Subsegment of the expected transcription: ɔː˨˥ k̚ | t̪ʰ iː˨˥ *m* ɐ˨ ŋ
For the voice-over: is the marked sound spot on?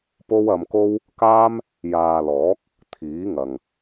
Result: no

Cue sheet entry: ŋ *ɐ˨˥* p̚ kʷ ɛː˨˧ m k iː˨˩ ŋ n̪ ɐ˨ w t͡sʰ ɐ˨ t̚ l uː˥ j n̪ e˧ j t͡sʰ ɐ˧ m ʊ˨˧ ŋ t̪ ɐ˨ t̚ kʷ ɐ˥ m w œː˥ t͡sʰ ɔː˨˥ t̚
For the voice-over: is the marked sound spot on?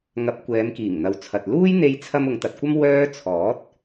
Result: yes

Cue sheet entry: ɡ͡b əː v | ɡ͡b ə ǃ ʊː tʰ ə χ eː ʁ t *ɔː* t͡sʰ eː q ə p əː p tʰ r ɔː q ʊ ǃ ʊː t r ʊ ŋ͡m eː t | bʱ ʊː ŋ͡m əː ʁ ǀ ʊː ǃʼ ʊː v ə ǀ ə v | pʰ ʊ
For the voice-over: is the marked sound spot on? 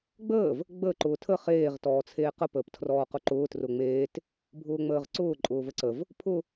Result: yes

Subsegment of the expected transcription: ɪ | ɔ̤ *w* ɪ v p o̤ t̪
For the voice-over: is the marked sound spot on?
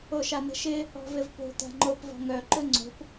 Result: no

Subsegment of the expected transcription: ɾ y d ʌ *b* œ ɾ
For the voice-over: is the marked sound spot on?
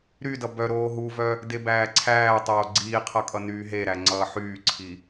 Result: yes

